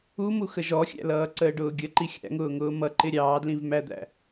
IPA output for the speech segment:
umu xəʒɔxʲæ̰lʌː ǀəːɖʊːɡʲə ǃixʲæ̰ŋʊːŋʊː mʌǃɪ ɾʲɑːdlĩvmæd̪æ̰

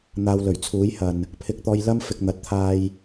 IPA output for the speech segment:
n̪aː˨˧wlɵ˨˩ɥt͡sʰuː˨˥jhɐ˨n | pʰɪ˧k̚t̪ɔː˧j lɐ˥m fɪ˧k̚ n̪ɐ˨˥t̚t̪ʰaː˧j

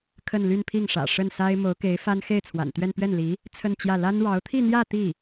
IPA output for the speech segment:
kʰə˥˧nly˥˧npʰi˥˩ŋʂä̰˨˩ ʂə˥˩nsa˥ɪ̯ mo˧˥ʊ̯ke˧˥ɪ̯ fa˥n xe˥˩ɪ̯t͡sʰwa̰˨˩nt̪ɥɛ˥˧n pɥɛ˥˩nli˧˥ | t͡sʰə˥˧nt͡ɕjä˥˩ la˥n ɻɑ˧˥ʊ̯t̪ʰi˥˧n̪jä˥˧ t̪i˥˩

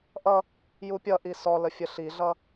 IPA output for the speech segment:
ʔʌ | jupʲʌʔi sɔlə fʲəɬiɮʌ

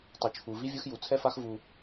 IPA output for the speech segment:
tˤu˨t͡ʃʰu˨vi˦ vʲɯ˦xju˨ t͡sʰɛ˦fa˦x vu˦

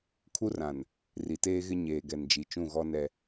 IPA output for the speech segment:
kʰu˦rã˨n | ri˨teː˦ɣɪ˦ ɲeː˨ɡɛ˨nd͡ʒi˨ t͡ʃũ˦˨ɣɔ˦nɛ˦

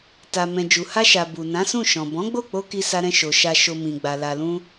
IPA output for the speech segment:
ta˨mɛ̃˨ d͡ʒu˨ha˧ʃa˨ bu˨ nã˨˦sũ˦˨ʃɔ̃˨ bɔ̃˨˦ɡ͡bo˦˨k͡po˧ ki˧sa˧ɾɛ̃˧ʃo˨ ʃa˨ʃo˨ mĩ˨ɡ͡ba˨ la˨lũ˧

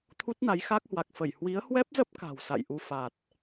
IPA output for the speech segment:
t̪ʰu˦˥t̚na˨˦jxa˦˥k̚hwa˨˩k̚ fə˧˩j hwi˨˦ə̯hwɛ˦˥p̚zə˦˥p̚ ka̤˨˩wsa̰˧˨j ʔu˧fa˨˩t̚

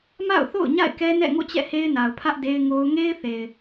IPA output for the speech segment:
ma̰˦˨ʊ̯θo̰˦˨ʊ̯ ɲa̰˦˨ɪ̯kɛ˦nɛ̰˦˨ŋo̰˦˨ t͡ɕɛ̰˦˨he˦ɪ̯na˨ʊ̯pʰä˦ʔ de˦ɪ̯ŋo˦ʊ̯ ŋe˦ɪ̯θe˨ɪ̯

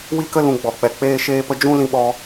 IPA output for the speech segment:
wi˦kə˦ lũ˧ɡ͡bɔ˨k͡pɛ˨ k͡peː˦ʃeː˦pə˦ d͡ʒũ˦lĩ˧ɓɔ˧

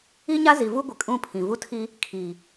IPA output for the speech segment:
i˦ɲa˦ zi˨vu˦ɡʷɪ˨ kʼũ˦pʰĩ˨ vu˦tʰi˦ | kʰi˨

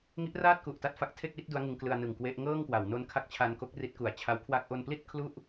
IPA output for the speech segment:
ŋi˦˥ʔraː˥˩t̚ku˨˩ʔta˦˥t̚ fa˦˥k̚ tʰe˥˩k̚wi˥˩t̚ du˦˥a̯ŋɯ˧ŋklɯ˧a̯ nɯ˨˩ŋkwe˦˥ʔ ŋɤː˥˩ŋkwa˩˦w no˦˥nkʰa˦˥k̚t͡ɕʰa˧nko˦˥k̚ ri˦˥t̚ku˨˩a̯ t͡ɕʰa˦˥wkʰwa˥˩k̚ ʔo˧npli˥˩t̚ kʰlu˥˩ʔ

